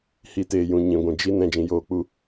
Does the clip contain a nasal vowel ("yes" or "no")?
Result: yes